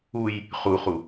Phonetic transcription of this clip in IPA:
uj | χuχu

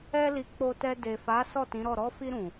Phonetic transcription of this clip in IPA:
ɛ˧li˨ k͡po˧tɛ˧ de˨fa˨˦ sɔ˦˨tĩ˨˦ɾɔ˦˨ ɾɔ˧fi˧ɾũ˨

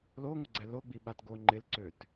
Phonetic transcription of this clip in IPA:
loŋʷɪɡ͡ǀɛ loɡ͡bi ɓatɡo ŋ͡ǃɪlǀøt

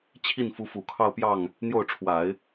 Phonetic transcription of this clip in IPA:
t͡ɕʰi˥˩nfu˧˥fu˨˩kʰɑ˥˧ʊ̯ pjɑ˥˩ŋ | n̪jo˥˩ʊ̯ʈ͡ʂʰwa˨˩˦ɪ̯

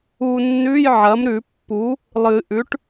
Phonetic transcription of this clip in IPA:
u˧nːʉ˧˥˧jʕɐ˩˥mɾʉ˨˩˦ pːu˩˥ | lˠɨ˨˩˦ʔʉ˩˥ʈ

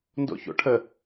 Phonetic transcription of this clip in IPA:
ndo̰ço̰ʈʰə

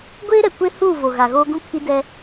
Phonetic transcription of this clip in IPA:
ɡʷeː˦ ɾɛ˨kʷe˦ huː˦˨vo˨ ɣa˨ɣoː˦ ɡũ˦kʰi˦dɛ˦

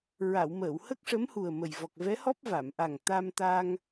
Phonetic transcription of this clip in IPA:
ɹa˨˩˨wməː˨˩˨w hə˦˥k̚ʂə˧˥mhu˨˩ə̯ mə˨˩j vɔ˨˩k̚vɛ˧˥hɔ˦˥p̚ va˨˩˨mʔa˨˩ŋ t̪a˧mt̪a˧ŋ

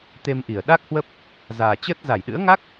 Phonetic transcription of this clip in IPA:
t̪e˧mʔi˧˩ə̯ ɗa˦˥k̚hwə˦˥p̚ | zaː˨˩t͡ɕəː˦˥t̚ za˧˩jɗɨ̰˧˥ə̯ŋa˦˥k̚

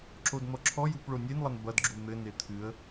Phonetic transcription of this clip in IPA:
ǁodn̪ɔǁʰɔjup ɭonʲenlˠɐn bɐdɡ͡ǁu n̪ɘne t̪ʰɨə̯

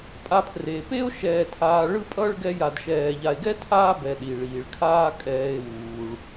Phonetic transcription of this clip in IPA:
pʼa˨pʰreː˩pe˦o̯ ʃɛː˨tʰaː˨ɭɯ˦ pʼʌ˦ɭ ɡɛ˦ja˨dʃɛː˨ ʎa˨e̯ɡɛ˥tʰaː˦ bɛ˨ɗi˩ɭiː˩ɭkʰaː˦ kʼɛː˨e̯ wuː˩ɭ

